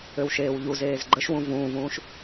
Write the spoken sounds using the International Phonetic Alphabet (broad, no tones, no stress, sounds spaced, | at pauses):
ø w ʃ eː w ʎ u z eː z ɡ͡ǃ ə ʃ w ũ v ũː v ũː ʃ